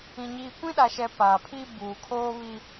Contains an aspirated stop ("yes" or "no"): yes